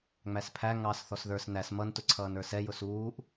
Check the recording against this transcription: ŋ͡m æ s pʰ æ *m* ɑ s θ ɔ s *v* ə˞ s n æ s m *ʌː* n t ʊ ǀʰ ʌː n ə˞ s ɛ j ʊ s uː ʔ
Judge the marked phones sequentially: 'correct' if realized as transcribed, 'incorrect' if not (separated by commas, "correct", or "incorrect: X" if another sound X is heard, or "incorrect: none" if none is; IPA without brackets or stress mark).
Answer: incorrect: ŋ, incorrect: ð, incorrect: ʌ